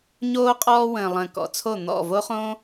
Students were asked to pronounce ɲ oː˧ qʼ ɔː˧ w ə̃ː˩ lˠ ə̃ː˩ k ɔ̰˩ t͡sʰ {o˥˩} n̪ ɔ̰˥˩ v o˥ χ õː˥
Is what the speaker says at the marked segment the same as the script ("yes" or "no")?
yes